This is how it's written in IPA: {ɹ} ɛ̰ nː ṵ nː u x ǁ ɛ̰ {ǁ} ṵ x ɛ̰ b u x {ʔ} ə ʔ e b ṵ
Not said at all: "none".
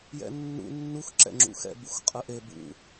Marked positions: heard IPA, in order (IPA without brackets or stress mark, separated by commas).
j, ŋ͡ǁ, qʼ